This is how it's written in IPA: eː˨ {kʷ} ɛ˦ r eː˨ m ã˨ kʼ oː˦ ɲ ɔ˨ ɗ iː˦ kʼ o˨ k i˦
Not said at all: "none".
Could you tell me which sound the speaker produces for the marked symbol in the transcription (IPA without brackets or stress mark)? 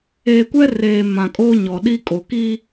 kʷ